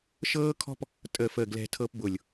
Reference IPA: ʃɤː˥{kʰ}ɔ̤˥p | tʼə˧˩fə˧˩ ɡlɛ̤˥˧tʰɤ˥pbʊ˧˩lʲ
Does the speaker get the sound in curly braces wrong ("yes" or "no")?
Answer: no